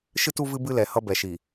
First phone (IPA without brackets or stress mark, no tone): ʃ